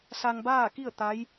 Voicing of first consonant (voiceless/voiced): voiceless